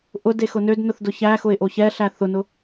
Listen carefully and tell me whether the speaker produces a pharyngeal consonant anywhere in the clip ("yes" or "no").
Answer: no